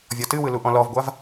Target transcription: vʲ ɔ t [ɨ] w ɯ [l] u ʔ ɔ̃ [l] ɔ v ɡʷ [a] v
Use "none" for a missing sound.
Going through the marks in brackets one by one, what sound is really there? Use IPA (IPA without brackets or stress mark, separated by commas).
ɨ, l, l, a